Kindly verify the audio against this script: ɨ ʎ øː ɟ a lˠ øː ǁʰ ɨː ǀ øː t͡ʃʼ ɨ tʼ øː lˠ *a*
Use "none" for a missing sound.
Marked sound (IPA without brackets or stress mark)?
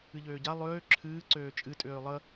ə